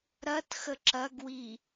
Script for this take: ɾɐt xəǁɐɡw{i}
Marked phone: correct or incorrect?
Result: correct